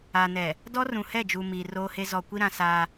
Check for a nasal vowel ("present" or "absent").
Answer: present